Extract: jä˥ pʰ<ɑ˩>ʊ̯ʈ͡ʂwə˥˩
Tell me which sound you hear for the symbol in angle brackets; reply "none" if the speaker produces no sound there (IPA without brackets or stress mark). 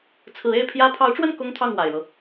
ɑ˧˥